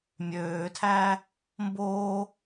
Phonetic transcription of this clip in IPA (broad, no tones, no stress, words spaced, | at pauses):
mʲøːtʰæː | mboː